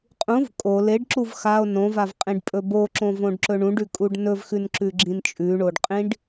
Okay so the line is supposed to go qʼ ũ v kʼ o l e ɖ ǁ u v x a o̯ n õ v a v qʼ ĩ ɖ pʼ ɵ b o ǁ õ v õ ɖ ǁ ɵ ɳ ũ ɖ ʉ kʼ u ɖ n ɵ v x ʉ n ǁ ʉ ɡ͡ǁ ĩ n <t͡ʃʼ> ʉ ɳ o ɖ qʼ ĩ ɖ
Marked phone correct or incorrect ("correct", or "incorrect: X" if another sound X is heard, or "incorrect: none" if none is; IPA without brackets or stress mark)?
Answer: correct